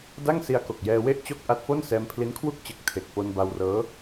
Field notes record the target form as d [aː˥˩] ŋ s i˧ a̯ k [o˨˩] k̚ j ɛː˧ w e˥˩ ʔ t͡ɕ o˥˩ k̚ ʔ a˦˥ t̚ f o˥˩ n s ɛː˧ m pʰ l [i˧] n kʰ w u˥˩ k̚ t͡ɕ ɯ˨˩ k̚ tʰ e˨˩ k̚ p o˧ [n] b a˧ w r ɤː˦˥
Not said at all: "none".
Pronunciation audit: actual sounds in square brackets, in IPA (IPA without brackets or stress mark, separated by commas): a˥˩, o˨˩, i˦˥, n